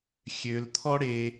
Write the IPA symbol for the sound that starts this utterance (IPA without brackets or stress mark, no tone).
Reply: xʲ